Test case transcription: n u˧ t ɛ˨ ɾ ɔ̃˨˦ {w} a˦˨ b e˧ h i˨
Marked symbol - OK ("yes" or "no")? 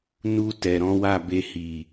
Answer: yes